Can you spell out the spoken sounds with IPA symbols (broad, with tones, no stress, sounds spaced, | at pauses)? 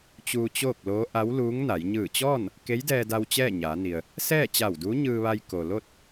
t͡ɕ uː˧ t͡ɕ oː˥˨ k̚ l oː˧˥ ʔ a˧˥ w l uː˧˥ ŋ n a˩˧ j ɲ ɯː˧˩ t͡ɕ ɔː˥˨ n | k e˧˥ j d ɛː˧ d a˧ w t͡ɕ ɛː˥˨ ɲ aː˩˧ n i˩ ə̯ | s ɛː˥˨ t͡ɕ a˧˩ w d uː˧˥ ɲ ɯː˧ ʋ a˧ j k o˩ l o˥˨ t̚